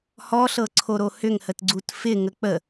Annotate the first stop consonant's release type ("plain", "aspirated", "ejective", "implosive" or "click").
click